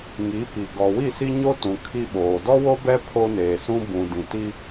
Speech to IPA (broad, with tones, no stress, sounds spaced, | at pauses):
ŋ i˨˦ p i˨ ɡ ɔ˨ w i˦˨ s i˦ ɲ o˦ t ũ˨ kʰ i˦ ɓ oː˨ d ɔ˦ w o˦ b ɛ˦ pʰ o˦ n eː˨ s ũ˦ b ũ˨ d ĩ˨ t i˦